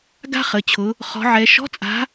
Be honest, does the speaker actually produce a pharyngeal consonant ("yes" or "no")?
yes